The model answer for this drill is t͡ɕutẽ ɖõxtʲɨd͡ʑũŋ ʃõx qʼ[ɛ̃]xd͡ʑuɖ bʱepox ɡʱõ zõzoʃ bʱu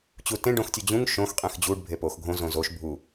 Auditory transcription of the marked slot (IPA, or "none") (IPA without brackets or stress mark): ẽ